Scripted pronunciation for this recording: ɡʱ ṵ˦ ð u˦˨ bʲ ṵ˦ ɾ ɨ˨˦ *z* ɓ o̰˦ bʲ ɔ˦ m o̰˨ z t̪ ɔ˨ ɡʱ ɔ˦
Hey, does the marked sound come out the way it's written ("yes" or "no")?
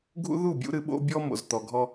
no